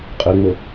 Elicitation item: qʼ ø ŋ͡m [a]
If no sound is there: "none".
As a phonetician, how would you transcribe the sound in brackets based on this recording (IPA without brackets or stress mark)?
ə